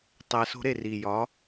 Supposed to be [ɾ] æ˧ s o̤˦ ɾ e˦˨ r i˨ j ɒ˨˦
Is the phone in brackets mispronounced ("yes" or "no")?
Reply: yes